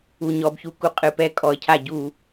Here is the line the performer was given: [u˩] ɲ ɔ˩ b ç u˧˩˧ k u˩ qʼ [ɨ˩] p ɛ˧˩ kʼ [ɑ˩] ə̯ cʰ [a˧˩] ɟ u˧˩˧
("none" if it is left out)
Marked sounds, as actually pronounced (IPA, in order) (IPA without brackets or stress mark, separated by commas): u˩, ɨ˩, ɔ˩, a˧˩